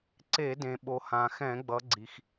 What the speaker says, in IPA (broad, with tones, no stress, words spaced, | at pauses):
ǀe˧˩˧dẽ˩ ɓo˩hã˩xɛ̃˧˩˧ɡ͡bʌ˩˧ ɡ͡ǀi˩x